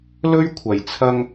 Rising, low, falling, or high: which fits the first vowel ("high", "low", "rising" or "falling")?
high